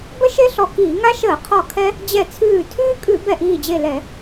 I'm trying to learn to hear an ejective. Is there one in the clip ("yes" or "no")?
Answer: yes